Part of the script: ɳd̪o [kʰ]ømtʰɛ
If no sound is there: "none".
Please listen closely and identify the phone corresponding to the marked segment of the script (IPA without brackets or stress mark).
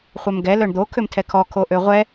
kʰ